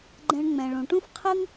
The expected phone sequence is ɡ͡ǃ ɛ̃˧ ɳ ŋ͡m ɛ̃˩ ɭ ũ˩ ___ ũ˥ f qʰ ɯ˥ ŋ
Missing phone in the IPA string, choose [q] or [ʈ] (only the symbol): ʈ